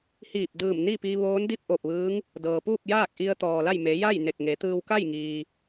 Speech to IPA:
hiː˧˩p̚ dɯː˧˩mni˥˨pi˧ ʋoː˧˥ndi˥˨p̚ʔo˧˩p̚ʋɯː˧˥ŋ | dɤː˩ puː˥˨p̚jaː˥˨k̚ ʔi˧ə̯t̪ɔː˩la˥˨j me˩˧ja˥˨j ne˧˩k̚ŋe˩˧t̪ɯː˧w ka˥˨jŋiː˩

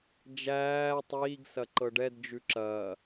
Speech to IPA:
d͡ʒæː tˤiːɡsɐ ǃɤɖɛdd͡ʒʉ ǁɐː

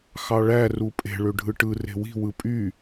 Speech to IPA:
xɑɭæ rupʼe̤ ɭøɖʱɯʈɯ re̤wi̤ wɯpʼy

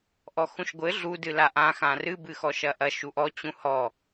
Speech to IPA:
ʔɔxũʃɡʷɘ ɮu dɨlaʔã xãrɨ bɨxɔʃɐʔɐ ʃuʔɔ t͡ɕũhɔ

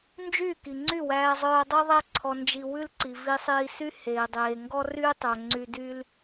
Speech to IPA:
nd͡ʒyː˦˨ki˨ŋ͡ǀy˦˨ wæː˧zˤœː˧dˤœ˦ðˤæ˦ ǀʰɔ˧nd͡ʒi˧wʉ˦lǀi˨ vi˧sˤiː˧sy˦ heː˨dˤeː˨ ŋɡɔ˦ryː˦tˤœ˨ ŋ͡ǀy˧ dy˦l

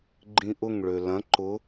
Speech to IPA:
ɡ͡ǃĩʔʊŋ ɭølɐ̃ ǃʊ

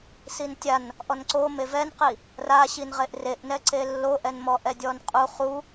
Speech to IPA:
sintʲan | ʔɔnǀome vɛnqi | raɕinʁeʔ reʔnɛǀe lːoʔɛnmɔ ʔɛdʲɔnqʼu χu

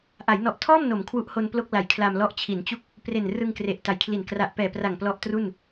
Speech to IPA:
ʔa˩˦jnɔ˨˩ʔtʰɔː˥˩m no˩˦m kʰwu˦˥ʔho˧nplo˥˩k̚ la˨˩jkʰla˧mlɔ˦˥ʔ t͡ɕʰi˩˦nt͡ɕu˦˥k̚ | pre˨˩n rɯ˧ŋkre˨˩ʔta˨˩jkʰli˨˩n kra˨˩ʔpɛː˨˩pra˨˩ŋ plɔ˦˥ʔtru˥˩n

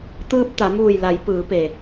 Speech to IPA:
t̪ɯː˧p̚t̪a˩˧muː˧˩jla˩˧j pɯː˩˧pe˩

